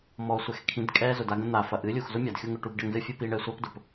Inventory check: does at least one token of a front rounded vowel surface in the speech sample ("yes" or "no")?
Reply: yes